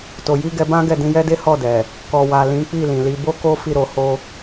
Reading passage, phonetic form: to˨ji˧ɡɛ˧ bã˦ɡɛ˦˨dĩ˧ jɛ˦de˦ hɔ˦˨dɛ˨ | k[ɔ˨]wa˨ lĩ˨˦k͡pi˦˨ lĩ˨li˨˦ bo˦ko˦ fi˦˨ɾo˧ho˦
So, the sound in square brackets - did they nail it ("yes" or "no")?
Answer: yes